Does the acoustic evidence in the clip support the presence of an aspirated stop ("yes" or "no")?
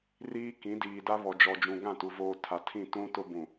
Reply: yes